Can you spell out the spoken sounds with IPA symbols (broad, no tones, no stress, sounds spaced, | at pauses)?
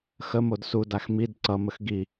x ə m o d s u d a x m i d ǀ ʌ m ə x ɡ i